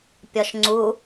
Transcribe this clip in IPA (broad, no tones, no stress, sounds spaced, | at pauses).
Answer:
pʲ ɒ ʃ ŋ͡ǀ u